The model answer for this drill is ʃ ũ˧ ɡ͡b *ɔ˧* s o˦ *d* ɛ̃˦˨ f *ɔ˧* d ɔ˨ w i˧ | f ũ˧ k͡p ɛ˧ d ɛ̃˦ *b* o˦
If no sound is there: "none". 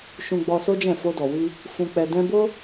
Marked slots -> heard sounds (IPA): ɔ˧, d͡ʒ, o˧, b

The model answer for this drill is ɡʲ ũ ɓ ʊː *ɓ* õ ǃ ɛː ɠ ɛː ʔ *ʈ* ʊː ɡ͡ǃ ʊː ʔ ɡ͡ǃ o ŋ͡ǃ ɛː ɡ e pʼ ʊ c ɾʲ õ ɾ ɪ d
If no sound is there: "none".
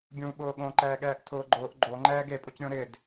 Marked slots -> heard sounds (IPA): ɠ, tʰ

